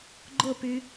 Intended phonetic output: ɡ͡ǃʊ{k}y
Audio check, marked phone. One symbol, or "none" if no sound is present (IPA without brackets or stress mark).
p